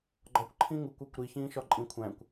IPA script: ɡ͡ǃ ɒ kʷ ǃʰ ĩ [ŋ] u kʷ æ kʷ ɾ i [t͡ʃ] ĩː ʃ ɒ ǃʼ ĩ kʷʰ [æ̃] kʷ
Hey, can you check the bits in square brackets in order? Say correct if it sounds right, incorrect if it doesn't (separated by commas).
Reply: correct, incorrect, correct